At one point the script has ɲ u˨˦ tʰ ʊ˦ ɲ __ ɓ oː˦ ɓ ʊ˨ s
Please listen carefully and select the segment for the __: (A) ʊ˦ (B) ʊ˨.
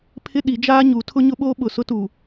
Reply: A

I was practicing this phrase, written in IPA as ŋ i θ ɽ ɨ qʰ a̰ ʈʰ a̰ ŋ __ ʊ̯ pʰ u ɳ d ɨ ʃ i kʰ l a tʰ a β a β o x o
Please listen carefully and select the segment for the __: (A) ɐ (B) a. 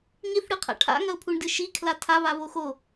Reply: A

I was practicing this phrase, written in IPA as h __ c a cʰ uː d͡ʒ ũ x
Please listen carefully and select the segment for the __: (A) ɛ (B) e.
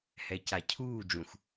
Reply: A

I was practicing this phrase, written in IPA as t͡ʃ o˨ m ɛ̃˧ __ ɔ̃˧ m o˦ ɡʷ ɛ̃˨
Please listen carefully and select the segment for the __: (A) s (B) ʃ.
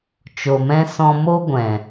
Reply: A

